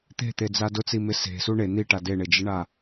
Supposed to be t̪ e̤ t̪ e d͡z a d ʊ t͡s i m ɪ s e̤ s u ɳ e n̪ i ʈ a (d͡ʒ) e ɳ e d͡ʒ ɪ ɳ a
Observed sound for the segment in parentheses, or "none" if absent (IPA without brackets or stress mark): d